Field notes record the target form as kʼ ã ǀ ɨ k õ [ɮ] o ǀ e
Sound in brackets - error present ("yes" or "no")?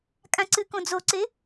yes